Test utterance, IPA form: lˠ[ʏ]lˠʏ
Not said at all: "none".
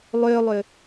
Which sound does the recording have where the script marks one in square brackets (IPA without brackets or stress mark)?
ʏ